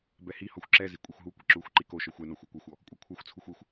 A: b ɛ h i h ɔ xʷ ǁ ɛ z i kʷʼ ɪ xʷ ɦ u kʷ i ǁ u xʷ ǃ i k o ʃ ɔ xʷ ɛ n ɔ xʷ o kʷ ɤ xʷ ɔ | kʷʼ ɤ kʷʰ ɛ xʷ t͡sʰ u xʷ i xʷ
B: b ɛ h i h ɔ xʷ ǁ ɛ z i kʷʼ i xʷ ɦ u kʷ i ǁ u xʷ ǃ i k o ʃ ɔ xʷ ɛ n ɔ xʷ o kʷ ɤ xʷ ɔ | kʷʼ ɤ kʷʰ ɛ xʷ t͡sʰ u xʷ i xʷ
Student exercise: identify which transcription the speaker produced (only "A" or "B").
B